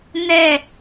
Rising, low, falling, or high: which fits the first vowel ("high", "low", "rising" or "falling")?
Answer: falling